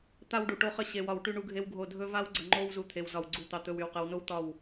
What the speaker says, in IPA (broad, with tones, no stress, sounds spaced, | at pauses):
t̪ a˦ w ɖ u˨ ʈ o˦ χ ə˦ ɕ e˨ w ɒ˨ w ʈ y˦ ɳ u˦ ɡʱ e˦ w ɡʱ o˦˨ dʱ ɵ˦ v a˦ w ɡ͡ǀ ə˨ ŋ͡ǃ o˦ w z u˨˦ t̪ʰ e˨ w z ɒ˨ w ɡ͡ǀ u˨ t̪ ɑ˨ t̪ ɵ˨ w y˨ w q ə˨˦ w n o˦ w t̪ ɒ˦˨ w